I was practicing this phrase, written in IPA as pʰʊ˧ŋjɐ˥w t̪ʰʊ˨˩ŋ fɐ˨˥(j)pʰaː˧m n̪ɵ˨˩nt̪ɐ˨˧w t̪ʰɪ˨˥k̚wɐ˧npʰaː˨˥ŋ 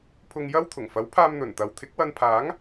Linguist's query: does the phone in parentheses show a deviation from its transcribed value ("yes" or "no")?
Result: yes